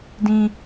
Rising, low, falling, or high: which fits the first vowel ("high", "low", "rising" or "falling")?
high